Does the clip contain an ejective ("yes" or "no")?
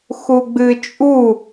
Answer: yes